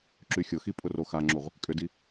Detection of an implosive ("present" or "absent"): absent